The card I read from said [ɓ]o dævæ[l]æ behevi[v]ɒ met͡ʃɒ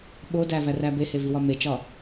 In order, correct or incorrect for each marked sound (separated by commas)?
correct, incorrect, incorrect